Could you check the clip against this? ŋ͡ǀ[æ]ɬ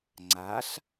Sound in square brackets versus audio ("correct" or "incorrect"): incorrect